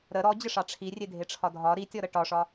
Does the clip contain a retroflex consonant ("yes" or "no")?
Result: yes